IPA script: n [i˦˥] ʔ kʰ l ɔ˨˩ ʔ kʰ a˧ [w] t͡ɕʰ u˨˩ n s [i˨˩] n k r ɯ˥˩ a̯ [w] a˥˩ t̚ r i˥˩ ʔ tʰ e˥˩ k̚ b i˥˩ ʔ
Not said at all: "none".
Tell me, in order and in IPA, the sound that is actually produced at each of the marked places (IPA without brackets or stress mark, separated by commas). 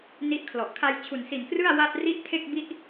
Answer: i˦˥, j, i˨˩, w